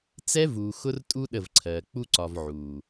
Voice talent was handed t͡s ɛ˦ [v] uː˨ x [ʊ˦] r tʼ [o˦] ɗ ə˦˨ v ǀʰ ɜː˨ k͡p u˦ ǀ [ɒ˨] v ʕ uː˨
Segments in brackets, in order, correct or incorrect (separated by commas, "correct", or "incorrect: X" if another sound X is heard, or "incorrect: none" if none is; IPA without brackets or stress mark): correct, correct, incorrect: u˦, correct